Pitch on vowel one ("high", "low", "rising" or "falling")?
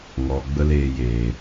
low